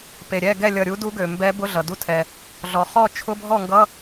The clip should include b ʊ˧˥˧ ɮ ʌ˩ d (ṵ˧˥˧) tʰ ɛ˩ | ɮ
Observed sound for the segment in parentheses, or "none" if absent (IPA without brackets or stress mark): u˧˥˧